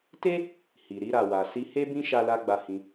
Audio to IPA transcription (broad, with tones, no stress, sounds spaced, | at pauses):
t e˦ | h i˨ ɾ i˧ ɾ a˨ w a˨ s i˧ h e˦ b ĩ˦ ʃ a˧ l a˧ ɡ͡b a˧ h ĩ˧